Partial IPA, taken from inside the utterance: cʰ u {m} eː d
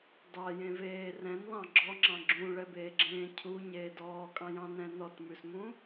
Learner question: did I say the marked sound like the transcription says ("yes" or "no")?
no